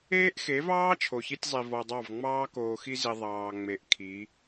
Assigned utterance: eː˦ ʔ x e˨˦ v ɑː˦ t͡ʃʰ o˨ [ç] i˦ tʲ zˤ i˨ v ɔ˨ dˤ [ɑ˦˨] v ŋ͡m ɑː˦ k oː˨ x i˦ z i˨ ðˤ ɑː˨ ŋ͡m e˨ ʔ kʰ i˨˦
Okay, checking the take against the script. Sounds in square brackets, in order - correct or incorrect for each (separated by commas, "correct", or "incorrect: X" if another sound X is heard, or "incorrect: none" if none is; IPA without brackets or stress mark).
correct, correct